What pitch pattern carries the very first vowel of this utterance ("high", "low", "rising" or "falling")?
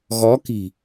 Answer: rising